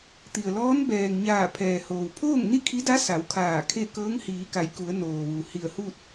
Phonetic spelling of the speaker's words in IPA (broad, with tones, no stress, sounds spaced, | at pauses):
t̪ i˩ ə̯ l ɔː˧˥ n b ɛː˩ ŋ ɲ aː˧˩ pʰ ɛː˩ h oː˩ w pʰ oː˥˨ ŋ n i˥˨ kʰ i˧˥ d a˧˥ s a˩˧ w kʰ aː˧˩ kʰ e˥˨ k ɤː˧˥ ŋ h iː˩˧ k a˩˧ j k u˩˧ ə̯ n oː˩ ʋ u˩ h i˧˩ ə̯ h u˥˨ t̚